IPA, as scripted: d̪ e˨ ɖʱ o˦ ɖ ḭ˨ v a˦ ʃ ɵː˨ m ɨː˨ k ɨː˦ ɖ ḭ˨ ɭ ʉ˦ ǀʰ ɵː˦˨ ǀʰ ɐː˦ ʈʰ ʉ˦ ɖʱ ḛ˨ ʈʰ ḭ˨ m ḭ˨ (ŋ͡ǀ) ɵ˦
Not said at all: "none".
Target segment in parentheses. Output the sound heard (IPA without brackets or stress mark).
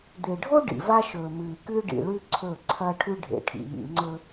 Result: ŋ͡ǀ